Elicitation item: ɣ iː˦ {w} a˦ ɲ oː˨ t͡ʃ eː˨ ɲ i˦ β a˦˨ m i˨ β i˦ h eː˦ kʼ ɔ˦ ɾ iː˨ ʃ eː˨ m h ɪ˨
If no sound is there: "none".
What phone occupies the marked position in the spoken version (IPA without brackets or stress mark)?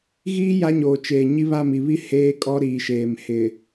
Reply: j